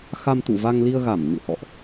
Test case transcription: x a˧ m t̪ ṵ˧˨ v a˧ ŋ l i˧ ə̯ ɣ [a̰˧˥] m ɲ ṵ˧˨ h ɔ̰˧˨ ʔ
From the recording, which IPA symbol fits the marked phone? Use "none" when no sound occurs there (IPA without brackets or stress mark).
a˧˩